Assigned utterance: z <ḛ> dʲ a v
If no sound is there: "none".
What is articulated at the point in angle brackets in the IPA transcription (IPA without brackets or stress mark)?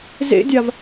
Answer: ḛ